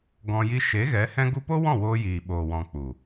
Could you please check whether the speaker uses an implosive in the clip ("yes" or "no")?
yes